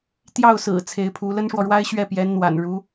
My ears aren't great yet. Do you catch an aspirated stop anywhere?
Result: yes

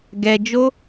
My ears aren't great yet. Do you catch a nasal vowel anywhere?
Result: no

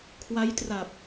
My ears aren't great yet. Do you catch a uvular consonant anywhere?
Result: no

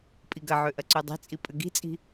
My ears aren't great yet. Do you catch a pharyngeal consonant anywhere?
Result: yes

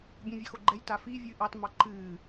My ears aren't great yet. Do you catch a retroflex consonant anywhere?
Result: no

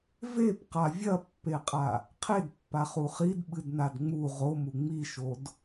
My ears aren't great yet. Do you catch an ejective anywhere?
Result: yes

